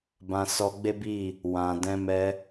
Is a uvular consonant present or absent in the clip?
absent